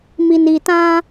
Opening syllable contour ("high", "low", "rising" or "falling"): low